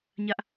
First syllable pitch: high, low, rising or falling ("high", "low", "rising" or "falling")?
high